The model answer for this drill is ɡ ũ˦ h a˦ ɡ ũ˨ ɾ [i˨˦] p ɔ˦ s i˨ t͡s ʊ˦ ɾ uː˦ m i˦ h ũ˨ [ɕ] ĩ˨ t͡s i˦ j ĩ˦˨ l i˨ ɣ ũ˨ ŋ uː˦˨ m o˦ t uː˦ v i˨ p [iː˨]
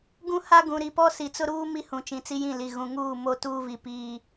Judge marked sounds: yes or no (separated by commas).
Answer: yes, no, yes